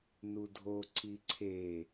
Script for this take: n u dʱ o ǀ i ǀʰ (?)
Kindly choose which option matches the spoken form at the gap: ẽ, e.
e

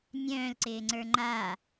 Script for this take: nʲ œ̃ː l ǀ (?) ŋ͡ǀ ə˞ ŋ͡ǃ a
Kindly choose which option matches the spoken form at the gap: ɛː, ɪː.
ɪː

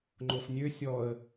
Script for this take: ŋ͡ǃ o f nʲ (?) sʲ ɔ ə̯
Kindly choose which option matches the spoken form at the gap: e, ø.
ø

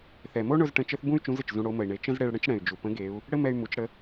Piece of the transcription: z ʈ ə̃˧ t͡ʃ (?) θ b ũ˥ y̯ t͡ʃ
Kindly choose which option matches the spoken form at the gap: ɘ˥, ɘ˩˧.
ɘ˥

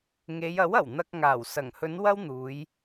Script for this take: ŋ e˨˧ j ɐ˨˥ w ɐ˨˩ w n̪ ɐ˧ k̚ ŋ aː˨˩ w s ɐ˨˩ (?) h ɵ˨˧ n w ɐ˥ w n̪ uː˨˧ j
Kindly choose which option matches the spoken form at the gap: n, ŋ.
ŋ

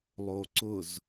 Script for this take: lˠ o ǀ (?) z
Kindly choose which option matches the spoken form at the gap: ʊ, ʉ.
ʊ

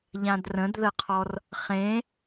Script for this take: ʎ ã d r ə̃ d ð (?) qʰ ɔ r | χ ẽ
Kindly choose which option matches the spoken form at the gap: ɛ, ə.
ə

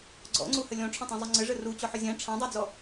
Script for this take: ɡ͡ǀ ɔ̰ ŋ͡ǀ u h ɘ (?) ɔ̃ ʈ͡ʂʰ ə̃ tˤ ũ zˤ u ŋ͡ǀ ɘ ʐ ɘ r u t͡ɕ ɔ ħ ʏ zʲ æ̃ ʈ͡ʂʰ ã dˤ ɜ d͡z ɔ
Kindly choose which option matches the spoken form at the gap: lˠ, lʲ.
lʲ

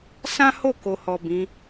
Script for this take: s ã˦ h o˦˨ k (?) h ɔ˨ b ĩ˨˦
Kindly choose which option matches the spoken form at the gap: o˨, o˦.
o˨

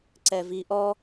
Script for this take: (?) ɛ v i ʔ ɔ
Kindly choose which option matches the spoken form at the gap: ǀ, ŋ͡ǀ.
ǀ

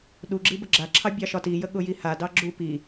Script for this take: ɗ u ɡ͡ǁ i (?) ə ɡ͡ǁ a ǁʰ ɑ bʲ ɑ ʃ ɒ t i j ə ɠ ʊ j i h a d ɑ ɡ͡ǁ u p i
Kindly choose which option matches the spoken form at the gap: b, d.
b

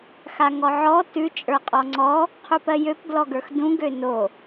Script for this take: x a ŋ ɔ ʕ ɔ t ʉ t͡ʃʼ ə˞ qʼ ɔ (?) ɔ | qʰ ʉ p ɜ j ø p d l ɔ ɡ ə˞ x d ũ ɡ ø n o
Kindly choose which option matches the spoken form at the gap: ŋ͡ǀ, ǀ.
ŋ͡ǀ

